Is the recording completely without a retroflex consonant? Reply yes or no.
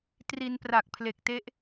yes